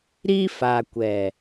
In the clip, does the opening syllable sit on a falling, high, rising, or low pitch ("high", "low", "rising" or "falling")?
high